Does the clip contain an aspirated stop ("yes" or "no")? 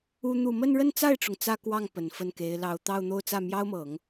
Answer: no